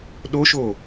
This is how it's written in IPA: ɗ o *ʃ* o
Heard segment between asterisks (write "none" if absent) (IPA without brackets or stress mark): ʃ